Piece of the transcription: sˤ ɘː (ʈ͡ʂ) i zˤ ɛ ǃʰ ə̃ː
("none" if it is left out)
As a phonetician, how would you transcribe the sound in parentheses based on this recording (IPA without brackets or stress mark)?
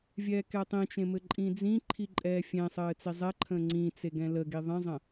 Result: t͡s